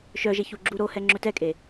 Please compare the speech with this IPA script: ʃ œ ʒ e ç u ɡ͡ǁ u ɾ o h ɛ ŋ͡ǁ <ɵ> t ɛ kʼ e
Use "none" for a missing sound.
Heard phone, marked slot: ɵ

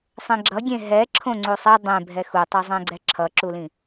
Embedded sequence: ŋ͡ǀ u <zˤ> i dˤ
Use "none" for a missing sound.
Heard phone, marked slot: sˤ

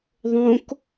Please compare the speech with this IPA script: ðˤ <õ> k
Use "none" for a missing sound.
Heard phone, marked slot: õ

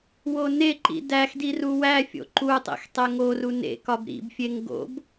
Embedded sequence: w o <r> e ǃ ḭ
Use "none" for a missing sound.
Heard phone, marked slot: n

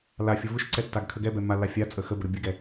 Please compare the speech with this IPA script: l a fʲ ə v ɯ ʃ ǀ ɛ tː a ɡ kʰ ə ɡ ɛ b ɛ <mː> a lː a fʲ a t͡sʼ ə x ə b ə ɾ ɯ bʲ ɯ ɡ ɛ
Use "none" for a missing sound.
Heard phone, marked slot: mː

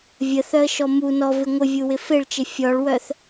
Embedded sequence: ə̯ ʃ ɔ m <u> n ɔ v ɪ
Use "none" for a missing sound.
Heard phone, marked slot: u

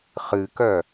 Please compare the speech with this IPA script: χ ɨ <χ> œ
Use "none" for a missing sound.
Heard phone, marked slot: k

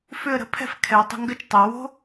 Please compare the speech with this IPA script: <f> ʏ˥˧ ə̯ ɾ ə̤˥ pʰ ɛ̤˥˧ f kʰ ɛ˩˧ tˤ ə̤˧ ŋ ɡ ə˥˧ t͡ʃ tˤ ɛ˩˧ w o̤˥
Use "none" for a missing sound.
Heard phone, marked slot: f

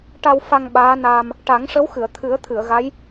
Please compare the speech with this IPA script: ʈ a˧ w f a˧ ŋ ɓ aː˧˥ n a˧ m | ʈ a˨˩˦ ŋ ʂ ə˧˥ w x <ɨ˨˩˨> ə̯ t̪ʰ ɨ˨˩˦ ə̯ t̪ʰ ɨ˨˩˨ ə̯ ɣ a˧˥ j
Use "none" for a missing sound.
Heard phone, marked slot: ɨ˨˩˨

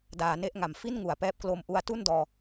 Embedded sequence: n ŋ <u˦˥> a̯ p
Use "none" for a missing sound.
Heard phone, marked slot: u˨˩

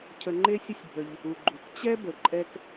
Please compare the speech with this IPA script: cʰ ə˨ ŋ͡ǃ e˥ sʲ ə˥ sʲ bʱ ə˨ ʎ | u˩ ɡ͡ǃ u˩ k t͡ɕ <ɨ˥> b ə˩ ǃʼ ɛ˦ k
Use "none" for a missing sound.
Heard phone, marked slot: ɛ˥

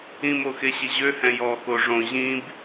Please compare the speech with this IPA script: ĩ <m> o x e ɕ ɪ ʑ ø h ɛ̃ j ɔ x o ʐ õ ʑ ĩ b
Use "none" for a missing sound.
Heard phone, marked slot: m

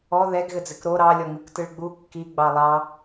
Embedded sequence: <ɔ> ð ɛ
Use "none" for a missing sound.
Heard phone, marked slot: ɔ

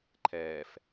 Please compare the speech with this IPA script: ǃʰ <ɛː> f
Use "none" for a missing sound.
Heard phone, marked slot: ɛː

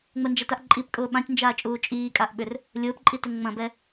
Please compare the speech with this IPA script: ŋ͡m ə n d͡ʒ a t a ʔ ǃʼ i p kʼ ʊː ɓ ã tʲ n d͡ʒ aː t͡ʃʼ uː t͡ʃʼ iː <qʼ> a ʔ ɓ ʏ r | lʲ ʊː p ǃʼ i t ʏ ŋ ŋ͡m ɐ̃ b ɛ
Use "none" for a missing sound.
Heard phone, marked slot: kʼ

